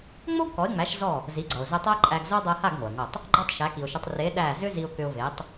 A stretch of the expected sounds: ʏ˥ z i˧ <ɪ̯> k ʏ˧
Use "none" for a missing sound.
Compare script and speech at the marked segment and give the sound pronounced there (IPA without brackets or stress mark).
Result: ʊ̯